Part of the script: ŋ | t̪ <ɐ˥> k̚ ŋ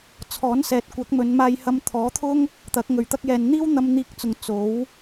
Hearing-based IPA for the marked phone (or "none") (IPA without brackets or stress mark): ɐ˨˥